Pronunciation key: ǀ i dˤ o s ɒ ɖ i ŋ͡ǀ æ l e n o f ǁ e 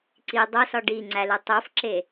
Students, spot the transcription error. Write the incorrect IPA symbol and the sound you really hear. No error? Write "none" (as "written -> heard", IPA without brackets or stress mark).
n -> tˤ